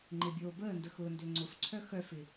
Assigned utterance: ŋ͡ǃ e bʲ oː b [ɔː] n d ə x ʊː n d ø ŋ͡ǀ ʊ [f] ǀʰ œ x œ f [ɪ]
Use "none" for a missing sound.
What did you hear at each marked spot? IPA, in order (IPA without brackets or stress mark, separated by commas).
əː, f, ɪ